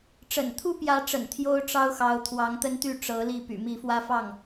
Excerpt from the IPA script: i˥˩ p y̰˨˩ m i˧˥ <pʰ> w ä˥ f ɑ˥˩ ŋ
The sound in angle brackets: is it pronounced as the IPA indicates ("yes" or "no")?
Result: no